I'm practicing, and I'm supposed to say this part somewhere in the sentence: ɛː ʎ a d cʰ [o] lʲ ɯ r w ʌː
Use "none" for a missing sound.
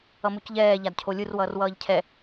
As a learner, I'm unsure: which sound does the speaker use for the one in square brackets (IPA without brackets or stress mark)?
o